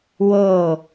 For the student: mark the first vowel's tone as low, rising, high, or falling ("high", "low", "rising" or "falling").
falling